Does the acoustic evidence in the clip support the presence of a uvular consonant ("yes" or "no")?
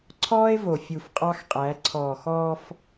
yes